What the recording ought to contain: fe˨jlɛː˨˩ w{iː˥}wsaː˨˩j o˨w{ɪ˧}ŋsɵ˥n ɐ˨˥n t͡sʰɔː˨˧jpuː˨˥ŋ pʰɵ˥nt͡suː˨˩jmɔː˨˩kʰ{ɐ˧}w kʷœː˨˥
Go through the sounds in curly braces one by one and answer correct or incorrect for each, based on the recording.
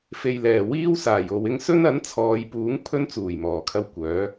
correct, correct, correct

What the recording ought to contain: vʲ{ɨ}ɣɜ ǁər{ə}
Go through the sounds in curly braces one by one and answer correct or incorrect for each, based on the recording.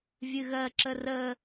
correct, correct

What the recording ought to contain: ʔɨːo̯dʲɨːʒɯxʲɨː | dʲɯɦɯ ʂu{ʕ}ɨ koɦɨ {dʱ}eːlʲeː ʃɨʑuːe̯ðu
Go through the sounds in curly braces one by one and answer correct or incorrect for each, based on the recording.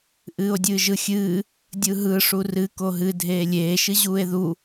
incorrect, correct

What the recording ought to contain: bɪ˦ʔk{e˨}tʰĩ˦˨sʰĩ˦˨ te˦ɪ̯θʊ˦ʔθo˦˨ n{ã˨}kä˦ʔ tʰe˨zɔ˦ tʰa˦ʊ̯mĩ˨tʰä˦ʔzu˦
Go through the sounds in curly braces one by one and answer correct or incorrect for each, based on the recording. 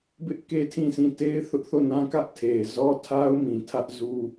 incorrect, incorrect

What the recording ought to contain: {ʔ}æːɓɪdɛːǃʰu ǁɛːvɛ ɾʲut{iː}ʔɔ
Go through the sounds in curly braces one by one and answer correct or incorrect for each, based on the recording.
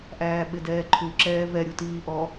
correct, correct

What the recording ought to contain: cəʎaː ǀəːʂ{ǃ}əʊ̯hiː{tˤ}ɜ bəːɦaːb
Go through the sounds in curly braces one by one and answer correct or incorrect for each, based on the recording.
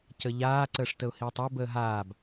incorrect, correct

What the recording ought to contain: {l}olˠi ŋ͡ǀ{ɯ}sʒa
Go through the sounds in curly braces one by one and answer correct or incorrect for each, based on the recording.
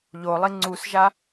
incorrect, incorrect

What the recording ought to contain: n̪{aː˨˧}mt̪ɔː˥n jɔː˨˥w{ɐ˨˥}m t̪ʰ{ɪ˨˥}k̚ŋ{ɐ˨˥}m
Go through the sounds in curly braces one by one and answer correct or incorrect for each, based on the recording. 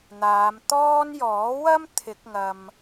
correct, incorrect, correct, incorrect

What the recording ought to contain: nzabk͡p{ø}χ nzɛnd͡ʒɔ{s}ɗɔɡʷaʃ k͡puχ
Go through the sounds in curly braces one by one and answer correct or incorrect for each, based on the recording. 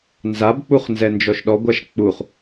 incorrect, incorrect

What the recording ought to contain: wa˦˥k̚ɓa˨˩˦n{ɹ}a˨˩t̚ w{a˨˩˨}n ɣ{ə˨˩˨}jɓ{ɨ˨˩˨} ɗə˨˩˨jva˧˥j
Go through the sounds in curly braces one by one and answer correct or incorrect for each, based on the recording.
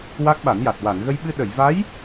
incorrect, correct, incorrect, incorrect

